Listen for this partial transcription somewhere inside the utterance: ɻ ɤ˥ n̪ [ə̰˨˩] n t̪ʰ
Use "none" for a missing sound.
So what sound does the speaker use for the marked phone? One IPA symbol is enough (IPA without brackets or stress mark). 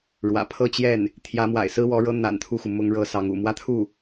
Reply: a̰˨˩